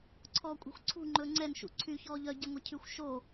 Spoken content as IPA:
ǀʰɔːkʷʼɛ̤xʷǀʰṳ ŋ͡ǃɵːŋ͡ǀɛn ʃṵǀʰy çɔːʎœ ɟɛŋʷæcʰyxʷ ʃo

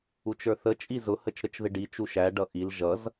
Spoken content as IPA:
ut͡ʃə˞θə t͡ʃʼizʊ hət͡ʃɾət͡ʃðɪɖi t͡ʃuʃæ ɖʌʔil ʒʌz

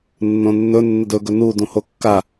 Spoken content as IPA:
nːõnːɵ nːədɵɡɵ nu dũhokːa

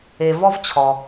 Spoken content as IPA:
e˨vɔ˦v t͡ɕʰɔ˨

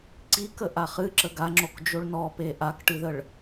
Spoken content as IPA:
ǀikəʔa χɨǁə ɡaŋ͡ǁokd͡ʒoɭ nɔpe ʔakʈɨðəɭ

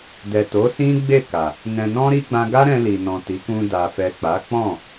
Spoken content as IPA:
dɛ˨to˨˦ sĩ˦ɡ͡be˦˨ka˨ | nɛ̃˨nɔ̃˧ɾi˧ ɡ͡bã˧ɡa˦ ɾɛ̃˧li˨nɔ̃˨ ti˨˦kũ˧ da˨fɛ˨k͡pa˨˦ k͡pɔ̃˦˨

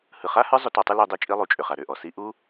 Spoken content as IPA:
hɯ˨χa˦hə˞˦zˤʏ˧ tɔ˧tˤɯ˦ lu˧dˤe˧t͡ʃʼi˧lˠu˨ t͡ʃʼʏ˨χa˨ɾʏ˦˨ʔɔ˨ si˧ʔu˦

